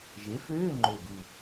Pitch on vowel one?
rising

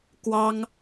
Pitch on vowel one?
high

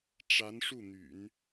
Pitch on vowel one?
rising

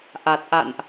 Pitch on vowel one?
low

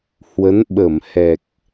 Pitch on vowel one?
rising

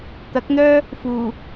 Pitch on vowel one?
rising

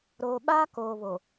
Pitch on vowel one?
low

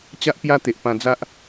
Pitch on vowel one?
high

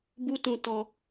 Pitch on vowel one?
high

